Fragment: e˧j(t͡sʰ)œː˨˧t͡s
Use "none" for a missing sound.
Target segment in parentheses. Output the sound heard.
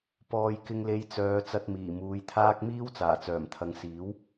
t͡s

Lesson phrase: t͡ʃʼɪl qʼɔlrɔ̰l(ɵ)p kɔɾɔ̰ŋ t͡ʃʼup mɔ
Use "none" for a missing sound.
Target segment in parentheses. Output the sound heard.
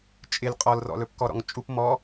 ɵ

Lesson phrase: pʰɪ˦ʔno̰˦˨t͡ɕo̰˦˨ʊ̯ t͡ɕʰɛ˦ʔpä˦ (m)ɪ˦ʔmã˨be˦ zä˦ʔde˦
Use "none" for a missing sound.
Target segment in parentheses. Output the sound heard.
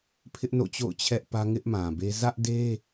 ŋ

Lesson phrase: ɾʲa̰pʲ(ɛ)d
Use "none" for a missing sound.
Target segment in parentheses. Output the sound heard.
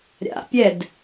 ɛ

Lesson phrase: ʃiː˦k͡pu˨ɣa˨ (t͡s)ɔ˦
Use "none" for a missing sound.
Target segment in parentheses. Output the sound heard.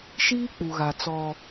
t͡s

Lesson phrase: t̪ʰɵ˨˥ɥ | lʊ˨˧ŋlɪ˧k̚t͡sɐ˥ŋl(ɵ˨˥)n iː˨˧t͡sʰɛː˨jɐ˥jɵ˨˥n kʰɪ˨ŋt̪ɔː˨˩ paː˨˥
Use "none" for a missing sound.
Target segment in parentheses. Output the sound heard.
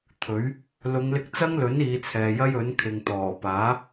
ɵ˨˥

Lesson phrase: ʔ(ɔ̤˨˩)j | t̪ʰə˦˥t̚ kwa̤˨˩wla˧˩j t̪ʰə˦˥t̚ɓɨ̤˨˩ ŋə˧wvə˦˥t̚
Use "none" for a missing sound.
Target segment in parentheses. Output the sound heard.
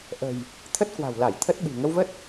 ə̤˨˩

